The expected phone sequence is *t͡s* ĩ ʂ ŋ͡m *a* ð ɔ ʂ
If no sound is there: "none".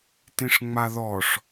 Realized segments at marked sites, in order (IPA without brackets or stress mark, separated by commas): t, a